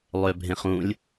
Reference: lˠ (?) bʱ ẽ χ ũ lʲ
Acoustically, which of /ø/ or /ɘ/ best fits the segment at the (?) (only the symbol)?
ø